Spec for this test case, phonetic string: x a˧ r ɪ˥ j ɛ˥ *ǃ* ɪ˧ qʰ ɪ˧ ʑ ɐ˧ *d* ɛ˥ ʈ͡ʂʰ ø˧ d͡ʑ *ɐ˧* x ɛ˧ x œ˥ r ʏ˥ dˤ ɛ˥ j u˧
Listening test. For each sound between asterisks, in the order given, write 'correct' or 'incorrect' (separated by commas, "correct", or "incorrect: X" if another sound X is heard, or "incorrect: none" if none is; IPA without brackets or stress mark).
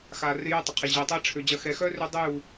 incorrect: tˤ, incorrect: tˤ, correct